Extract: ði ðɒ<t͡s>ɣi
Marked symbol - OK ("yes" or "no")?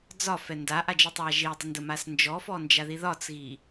yes